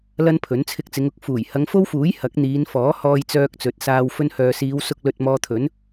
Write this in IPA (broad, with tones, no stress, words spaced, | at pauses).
lɐ˥npʰɵ˨˥n t͡sʰɪ˧k̚t͡sɪ˨˧ŋʊ˨k̚ fuː˨˩j hɐ˨˧ŋfo˥wfuː˨˥j hɐ˨˥k̚n̪iː˨˧nfɔː˨˥hɔː˧j t͡sœː˧k̚t͡sɵ˨t̚saː˧w fɵ˧nhœː˨siː˨˧wsʊ˧k̚ lɵ˧t̚ mɔː˧t̪ʰɵ˨˥n